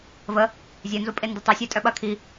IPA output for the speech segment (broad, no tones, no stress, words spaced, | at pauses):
və | zʲœnzupʼe ndətˤesʲe tʼœɓɐ kʰi